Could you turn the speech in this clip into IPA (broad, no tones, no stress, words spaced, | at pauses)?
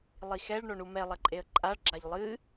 lˠixɛɭ ɳoɳumɛ lˠɐǃʼeə̯ǃʼaɭ ɡ͡ǁaʎlˠɨ